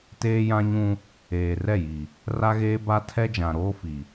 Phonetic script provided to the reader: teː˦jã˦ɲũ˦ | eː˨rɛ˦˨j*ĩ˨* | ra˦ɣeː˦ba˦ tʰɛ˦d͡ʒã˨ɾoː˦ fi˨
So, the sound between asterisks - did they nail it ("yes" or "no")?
no